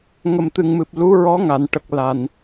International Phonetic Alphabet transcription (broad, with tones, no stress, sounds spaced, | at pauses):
ŋ ə˨˩ m t̪ ɨ˨˩ ŋ m ɨ˨˩ p̚ l u˧˥ ɹ ɔ˧˥ ŋ a˨˩˨ n ʈ ə˨˩ k̚ l a˨˩ n